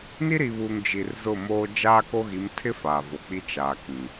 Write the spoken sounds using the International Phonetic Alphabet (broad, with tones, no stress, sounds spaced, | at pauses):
n i˦ ɾ i˨ β uː˨ ŋ d͡ʒ i˨ r z ʊ˦˨ m oː˦ d͡ʒ aː˦ k o˦ ɣ i˨˦ m tʰ ɪ˦ f aː˨ v o˨ k͡p i˦ t͡ʃ aː˨ k ĩ˨